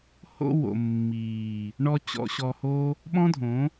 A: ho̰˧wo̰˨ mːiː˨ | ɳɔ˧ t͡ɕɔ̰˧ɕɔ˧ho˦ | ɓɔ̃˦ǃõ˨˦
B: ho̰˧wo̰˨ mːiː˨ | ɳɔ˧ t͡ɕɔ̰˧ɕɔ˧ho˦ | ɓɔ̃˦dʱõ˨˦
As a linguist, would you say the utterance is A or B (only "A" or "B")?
B